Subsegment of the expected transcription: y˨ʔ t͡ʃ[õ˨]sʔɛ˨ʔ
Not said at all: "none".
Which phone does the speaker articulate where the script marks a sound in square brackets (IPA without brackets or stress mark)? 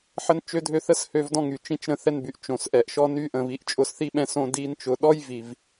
õ˨